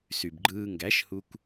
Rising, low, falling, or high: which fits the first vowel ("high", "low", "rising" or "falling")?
low